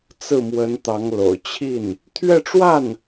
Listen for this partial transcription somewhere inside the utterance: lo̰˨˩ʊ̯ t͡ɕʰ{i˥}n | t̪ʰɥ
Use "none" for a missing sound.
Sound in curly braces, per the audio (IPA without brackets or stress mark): i˥˩